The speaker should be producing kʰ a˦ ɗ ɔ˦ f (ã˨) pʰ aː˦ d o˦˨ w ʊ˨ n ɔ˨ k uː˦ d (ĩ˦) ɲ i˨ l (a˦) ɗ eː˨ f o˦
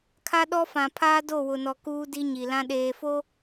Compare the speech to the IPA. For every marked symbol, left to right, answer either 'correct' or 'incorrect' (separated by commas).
correct, incorrect, incorrect